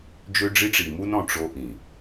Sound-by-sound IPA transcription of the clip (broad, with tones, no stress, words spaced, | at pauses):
d͡ʒø˦ɖ͡ʐi˦ʈ͡ʂi˨ mu˦nɔ̃˨ ʈ͡ʂo˦ʔĩ˨